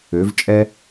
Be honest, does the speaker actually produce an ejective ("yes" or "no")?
yes